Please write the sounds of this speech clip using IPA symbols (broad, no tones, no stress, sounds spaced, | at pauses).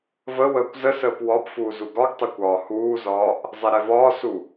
v ə w əː kʷ z ə s əː p w ɒ p f uː z u ɡ ɒ ɡ tˤ ɛ kʷ ɒː h uː z ɒː ʔ | zˤ ɛ ɾ ɛ v ɒː s u